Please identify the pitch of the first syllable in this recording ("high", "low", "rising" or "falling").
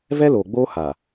high